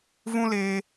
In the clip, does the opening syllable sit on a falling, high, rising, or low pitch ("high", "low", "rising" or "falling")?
high